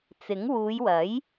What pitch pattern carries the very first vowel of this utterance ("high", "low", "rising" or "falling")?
rising